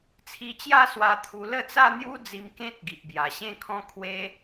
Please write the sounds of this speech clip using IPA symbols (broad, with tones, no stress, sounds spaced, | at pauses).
t͡sʰ i˧ t͡ɕ j a˥˧ s w a˧ t̪ʰ u˧ l ə˥˧ t͡s a˥˧ n̪ j u˦ d͡z i˧ m k ẽ˦ t̚ ɡ i˨ ʔ b j a˨˩ ɕ ẽ˥˧ kʰ ɔ̃˦ kʰ w e˦